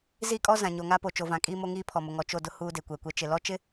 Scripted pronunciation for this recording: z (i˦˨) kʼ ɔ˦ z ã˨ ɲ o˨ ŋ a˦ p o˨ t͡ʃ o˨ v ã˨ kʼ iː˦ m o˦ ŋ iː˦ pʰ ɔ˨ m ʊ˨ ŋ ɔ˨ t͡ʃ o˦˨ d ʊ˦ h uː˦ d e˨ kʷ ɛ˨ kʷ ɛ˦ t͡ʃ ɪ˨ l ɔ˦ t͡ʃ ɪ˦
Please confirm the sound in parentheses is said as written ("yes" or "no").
yes